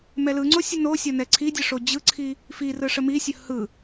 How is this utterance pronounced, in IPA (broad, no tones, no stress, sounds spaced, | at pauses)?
m ɛ l ɯ ŋ͡ǀ o sʲ ə n o sʲ ɒ n ɛ ǀʰ i dʲ ə ʂ o d͡ʑ ɯ ǀʰ i | f i r ɯ ʂ ə m i sʲ ə h ɯ